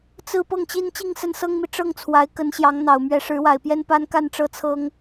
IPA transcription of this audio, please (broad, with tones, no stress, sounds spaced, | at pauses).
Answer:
t͡s ɹ̩˥˧ p ɤ˥˩ ŋ t͡ɕ i˥ n t͡ɕ i˥˧ ŋ s ə˥˩ n s ɤ˥ ŋ m i˨ ʈ͡ʂ ɤ˥˩ ŋ t͡sʰ w a˧˥ ɪ̯ k ə˧˥ n ɕ j ɑ˧˥ ŋ n̪ ɑ˨˩ ʊ̯ m ɥ ɛ˧˥ ʂ ɻ̩˧˥ w a˨˩ ɪ̯ p j ɛ˥ n p a˥ n k a˥˧ n ʈ͡ʂ ɤ˥˩ t͡sʰ ɤ˥ ŋ